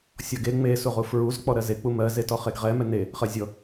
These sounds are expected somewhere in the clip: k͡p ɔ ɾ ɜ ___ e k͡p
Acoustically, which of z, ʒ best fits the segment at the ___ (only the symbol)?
z